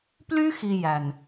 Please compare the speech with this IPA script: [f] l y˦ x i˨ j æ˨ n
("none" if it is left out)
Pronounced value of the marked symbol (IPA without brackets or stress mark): p